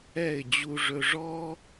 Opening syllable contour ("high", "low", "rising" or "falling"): falling